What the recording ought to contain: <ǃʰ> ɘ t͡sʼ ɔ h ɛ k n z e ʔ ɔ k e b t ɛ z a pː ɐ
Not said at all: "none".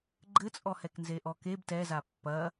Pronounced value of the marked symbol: ɡ͡ǃ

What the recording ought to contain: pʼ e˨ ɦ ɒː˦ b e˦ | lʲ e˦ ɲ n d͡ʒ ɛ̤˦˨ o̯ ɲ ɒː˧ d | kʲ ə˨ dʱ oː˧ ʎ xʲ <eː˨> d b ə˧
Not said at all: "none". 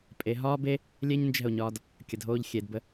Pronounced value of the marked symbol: e˨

